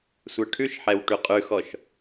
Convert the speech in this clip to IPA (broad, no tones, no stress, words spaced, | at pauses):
sʷɛʈʰʉʃħɛw ʈʉqʼʉxɔʃ